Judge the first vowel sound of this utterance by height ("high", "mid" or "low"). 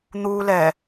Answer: high